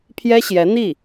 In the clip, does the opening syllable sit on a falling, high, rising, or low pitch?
high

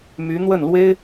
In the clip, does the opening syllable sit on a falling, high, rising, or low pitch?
rising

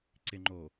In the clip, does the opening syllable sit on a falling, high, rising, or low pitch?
low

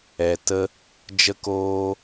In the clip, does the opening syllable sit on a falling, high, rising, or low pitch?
low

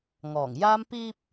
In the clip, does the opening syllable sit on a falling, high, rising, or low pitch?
low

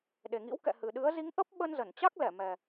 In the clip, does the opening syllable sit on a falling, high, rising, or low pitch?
low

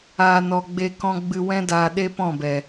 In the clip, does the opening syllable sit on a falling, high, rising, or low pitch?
low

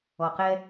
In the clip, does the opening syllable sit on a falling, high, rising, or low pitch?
low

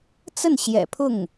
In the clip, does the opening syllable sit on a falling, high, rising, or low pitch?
falling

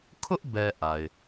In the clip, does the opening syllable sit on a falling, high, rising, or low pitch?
high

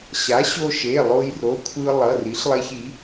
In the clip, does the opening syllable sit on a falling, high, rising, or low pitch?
rising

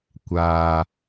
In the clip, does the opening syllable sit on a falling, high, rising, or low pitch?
low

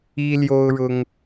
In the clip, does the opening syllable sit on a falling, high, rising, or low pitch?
high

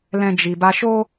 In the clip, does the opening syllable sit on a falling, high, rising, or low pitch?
high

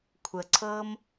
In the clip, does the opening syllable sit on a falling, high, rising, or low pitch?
low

